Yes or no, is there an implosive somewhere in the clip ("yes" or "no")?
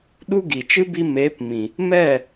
yes